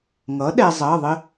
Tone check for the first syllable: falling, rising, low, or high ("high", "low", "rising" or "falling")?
rising